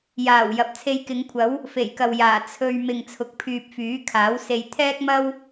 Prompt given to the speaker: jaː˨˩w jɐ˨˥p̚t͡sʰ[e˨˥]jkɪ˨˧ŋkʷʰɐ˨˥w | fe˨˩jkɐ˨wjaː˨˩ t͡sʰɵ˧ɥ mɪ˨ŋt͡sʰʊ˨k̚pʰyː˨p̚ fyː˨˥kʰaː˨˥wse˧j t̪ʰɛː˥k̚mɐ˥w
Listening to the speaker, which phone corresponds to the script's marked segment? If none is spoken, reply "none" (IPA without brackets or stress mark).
e˧